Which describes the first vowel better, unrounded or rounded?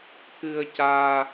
unrounded